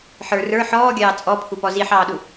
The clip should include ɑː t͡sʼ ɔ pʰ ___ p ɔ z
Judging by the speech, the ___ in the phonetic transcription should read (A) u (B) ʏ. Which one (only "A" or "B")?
A